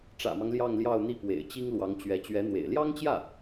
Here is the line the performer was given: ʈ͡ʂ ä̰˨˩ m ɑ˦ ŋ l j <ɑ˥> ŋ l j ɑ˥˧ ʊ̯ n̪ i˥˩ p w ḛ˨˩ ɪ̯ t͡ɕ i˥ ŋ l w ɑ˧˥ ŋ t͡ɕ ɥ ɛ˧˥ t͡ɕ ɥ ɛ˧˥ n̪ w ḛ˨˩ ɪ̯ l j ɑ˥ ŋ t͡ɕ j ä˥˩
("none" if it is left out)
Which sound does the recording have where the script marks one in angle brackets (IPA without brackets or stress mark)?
ɑ˥˧